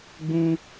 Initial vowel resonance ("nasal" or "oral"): nasal